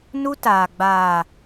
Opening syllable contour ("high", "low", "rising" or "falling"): high